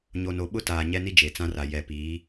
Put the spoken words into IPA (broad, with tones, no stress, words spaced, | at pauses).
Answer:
ɲo˨no˨ ɓʊ˦taː˨ ɲɛ˦ni˦ d͡ʒe˨t͡sã˦ra˨ jɛ˨piː˨˦